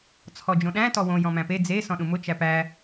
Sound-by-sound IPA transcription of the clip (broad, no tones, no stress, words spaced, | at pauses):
t͡sʰɔd͡ʒõɗæ̃ tɔwõ jɔ̃mæ̃pe d͡ze sɔ̃ɗũmʊ t͡ʃæpæ